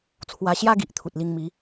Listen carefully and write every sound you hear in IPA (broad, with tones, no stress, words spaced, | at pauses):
t͡sʰwa˧ɕja˦ɡi˨ʔ t̪ʰu˨t̚li˧ŋmi˨˦